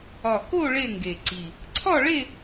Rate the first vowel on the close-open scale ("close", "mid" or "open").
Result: open